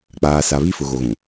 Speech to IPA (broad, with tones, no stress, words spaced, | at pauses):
k͡paː˨sa˨βi˦ fʊ˨ɣo˨ɣũ˨